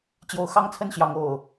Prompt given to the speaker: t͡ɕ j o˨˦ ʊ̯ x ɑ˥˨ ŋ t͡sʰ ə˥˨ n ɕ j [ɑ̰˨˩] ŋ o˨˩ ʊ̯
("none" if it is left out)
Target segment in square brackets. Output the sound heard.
ɑ˨˦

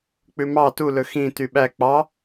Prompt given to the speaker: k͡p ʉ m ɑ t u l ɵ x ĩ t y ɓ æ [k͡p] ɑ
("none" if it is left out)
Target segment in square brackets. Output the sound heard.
k͡p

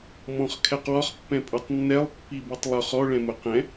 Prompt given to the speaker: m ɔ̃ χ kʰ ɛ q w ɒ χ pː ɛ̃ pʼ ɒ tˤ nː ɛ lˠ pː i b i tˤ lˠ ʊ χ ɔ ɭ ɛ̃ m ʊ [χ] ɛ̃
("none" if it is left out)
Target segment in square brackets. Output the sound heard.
q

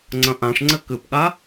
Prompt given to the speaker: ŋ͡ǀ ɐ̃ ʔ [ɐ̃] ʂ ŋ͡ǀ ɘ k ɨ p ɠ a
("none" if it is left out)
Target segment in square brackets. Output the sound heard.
ã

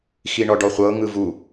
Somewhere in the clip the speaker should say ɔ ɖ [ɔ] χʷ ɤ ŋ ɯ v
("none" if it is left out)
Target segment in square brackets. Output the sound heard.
ɔ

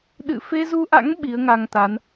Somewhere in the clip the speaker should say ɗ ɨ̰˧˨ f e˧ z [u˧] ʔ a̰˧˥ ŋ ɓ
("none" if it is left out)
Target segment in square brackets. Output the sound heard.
u˧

